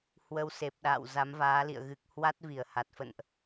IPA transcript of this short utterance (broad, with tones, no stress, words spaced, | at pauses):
hwə˧wse˨˩p̚ɗa̰ː˧˨w za˨˦mvaː˨˦lḭ˧˨ə̯ɣɨ˨˩k̚ hwa˦˥t̚vi˧˩ə̯ha˨˩t̚ fə̰˧˨nʔ